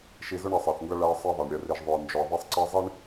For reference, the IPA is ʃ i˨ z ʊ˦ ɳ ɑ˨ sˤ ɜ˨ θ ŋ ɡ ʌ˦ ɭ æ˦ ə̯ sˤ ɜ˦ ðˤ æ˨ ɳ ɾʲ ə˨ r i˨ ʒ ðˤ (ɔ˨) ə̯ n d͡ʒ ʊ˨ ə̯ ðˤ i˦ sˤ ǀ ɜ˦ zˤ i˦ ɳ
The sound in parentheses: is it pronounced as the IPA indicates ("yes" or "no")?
no